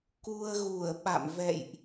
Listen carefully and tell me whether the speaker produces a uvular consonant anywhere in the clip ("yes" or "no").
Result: no